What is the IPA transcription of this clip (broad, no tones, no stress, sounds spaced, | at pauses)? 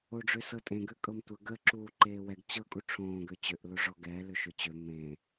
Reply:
o ɖ͡ʐ ø s ɤ tʼ ẽ ɡ ø kʼ ɤ m tʷ ə ɡ ə ǁ uː ǃ eː w ɛ ɡ t͡ɕ ɤ kʼ u ʈ͡ʂʰ õː ɡ ø t͡ɕ ø ʔ l o ʐ ɔ ɡ ɛː l ø ʃ ø t͡ɕ ø m ẽ